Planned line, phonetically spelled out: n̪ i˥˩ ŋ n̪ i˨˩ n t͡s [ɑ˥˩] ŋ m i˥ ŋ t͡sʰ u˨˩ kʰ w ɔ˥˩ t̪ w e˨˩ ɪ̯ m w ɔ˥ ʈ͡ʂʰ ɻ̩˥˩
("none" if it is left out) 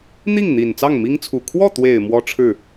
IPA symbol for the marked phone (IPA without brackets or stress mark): ɑ˥˩